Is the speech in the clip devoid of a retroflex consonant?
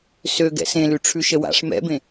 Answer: no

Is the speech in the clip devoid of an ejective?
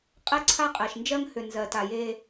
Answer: no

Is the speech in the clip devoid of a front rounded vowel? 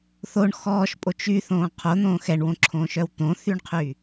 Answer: no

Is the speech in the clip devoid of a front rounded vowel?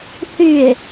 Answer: no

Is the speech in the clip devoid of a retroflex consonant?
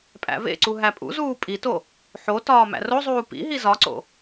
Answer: yes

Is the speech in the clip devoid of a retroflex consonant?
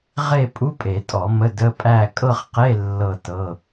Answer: yes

